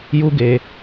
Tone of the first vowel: high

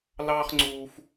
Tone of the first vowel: high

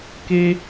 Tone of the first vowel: high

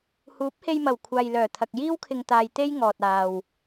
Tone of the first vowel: rising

